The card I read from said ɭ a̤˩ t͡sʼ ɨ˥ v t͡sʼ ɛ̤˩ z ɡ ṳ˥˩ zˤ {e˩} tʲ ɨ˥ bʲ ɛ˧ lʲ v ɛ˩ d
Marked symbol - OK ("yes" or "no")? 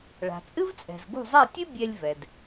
no